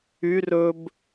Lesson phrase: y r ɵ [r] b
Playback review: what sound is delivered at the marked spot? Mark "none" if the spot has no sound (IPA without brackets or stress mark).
none